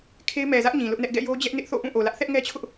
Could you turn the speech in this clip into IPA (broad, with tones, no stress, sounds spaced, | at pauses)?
kʰ e˦ ɪ̯ m ɛ˨ z ä˦ ʔ ɲ ĩ˨ l ʊ˦ ʔ n ɛ˦ ʔ ɡ ɛ̰˦˨ j o˦ d͡ʑ ɛ˦ ʔ n ɪ˦ ʔ θ o̰˦˨ ʔ ũ˦˨ ʔ o˨ l ä˦ ʔ θ ɛ˦ ʔ ŋ ɛ˦ t͡ɕʰ ʊ˦ ʔ